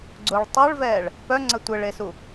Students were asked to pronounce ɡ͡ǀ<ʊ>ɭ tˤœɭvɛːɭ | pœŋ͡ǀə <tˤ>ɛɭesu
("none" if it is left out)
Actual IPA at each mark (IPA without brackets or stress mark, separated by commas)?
ʊ, tʷ